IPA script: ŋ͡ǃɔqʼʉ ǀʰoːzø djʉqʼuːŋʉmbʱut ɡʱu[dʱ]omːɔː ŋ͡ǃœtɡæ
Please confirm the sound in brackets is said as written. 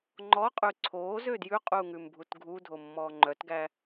yes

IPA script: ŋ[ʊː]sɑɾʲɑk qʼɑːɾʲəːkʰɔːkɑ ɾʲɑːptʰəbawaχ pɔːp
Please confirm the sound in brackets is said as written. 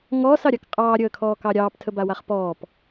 no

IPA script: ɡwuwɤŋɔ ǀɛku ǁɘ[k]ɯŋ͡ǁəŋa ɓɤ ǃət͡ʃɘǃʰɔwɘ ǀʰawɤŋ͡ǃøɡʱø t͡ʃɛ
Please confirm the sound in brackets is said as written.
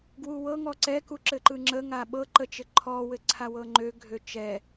no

